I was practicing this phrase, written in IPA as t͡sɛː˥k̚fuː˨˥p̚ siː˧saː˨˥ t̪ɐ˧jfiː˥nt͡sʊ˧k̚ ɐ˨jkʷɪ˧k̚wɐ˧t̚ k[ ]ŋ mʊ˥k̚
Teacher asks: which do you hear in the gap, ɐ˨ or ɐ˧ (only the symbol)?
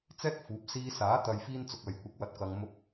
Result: ɐ˧